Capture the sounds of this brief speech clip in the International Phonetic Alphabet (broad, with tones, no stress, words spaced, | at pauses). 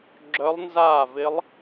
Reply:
ɡ͡ǁœ˧˥lˠnzaː˥˩vɪ˧˥lˠ